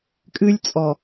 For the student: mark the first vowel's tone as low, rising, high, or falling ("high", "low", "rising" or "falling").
high